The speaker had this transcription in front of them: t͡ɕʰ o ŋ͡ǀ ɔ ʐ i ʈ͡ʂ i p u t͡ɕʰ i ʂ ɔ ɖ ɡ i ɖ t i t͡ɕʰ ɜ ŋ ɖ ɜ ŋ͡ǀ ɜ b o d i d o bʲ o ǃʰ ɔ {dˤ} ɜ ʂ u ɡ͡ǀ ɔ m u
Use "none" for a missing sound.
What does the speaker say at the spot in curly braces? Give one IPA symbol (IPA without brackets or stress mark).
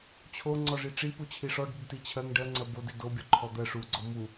d̪